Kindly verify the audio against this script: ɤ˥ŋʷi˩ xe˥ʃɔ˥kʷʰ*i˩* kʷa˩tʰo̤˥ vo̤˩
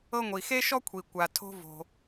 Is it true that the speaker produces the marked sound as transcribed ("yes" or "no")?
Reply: yes